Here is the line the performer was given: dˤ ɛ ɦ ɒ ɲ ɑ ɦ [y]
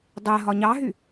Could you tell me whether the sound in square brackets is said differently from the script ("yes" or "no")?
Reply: no